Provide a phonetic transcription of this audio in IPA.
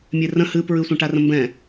mʲerə̃ hɨpɹɨsʷɛ̃ ʈarə̃mbɛ̃

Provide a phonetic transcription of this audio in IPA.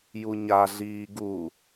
juɲaɮiː ɡu

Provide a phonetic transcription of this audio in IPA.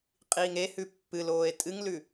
qʼiːŋehʉ pːɨloːe̯ tʼɨŋlʉ

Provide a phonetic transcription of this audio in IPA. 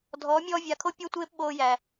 dʱɔː˨˦mʲɔː˧ vʲa˨kʰo˦ pʲɔ˦tʷeː˦p ɓoː˧jæ˨

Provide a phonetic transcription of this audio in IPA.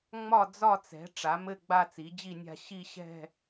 ŋ͡mɒ˥˨d͡zɒ˥˨t͡sɛ̤˩˥ ʈ͡ʂa˩˥mɘ˥˨ ɡ͡ba˥˨t͡si˩˥d͡ʑi˥˨nʲa̤˥˨ ɕi˥˨ɕɛ̤˥˨

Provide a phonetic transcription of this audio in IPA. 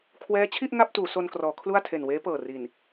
kʰwɛː˦˥t͡ɕʰi˥˩ʔ ŋa˥˩p̚tuː˩˦ so˧nkrɔː˩˦ kʰlu˥˩a̯tʰe˨˩nweː˦˥ pɤː˨˩ri˨˩n

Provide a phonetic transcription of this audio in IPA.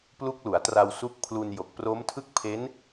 plu˦˥k̚lu˩˦a̯tra˧w su˦˥k̚ pʰlu˧njo˨˩k̚ pro˦˥mtʰɯ˥˩k̚pʰe˦˥n

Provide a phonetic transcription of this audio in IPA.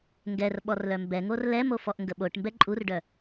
ŋɡɛr ɓɔrlœmbɛŋor lɛmo fɔʔŋɡəɓoʈmbɛ ǃʼurɖœ

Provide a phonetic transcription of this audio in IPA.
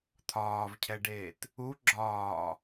t̪ʰɒːvcʰɛɖeːt | u ɡ͡ǁɒː

